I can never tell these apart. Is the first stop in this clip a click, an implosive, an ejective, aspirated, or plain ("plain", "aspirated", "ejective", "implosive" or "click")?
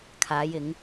aspirated